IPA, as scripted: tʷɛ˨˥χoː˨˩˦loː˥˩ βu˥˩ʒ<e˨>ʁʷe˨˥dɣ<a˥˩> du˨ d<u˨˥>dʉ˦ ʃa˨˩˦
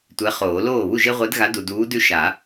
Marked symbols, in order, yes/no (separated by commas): no, no, no